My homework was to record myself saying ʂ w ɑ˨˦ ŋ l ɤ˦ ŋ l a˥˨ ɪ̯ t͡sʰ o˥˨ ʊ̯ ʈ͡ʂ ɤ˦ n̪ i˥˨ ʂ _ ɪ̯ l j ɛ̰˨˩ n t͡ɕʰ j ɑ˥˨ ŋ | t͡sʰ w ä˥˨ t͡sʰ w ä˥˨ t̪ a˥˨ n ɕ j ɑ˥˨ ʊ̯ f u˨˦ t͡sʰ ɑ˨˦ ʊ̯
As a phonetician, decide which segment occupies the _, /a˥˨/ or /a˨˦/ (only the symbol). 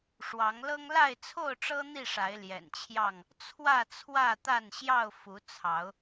a˨˦